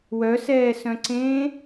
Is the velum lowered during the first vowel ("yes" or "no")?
no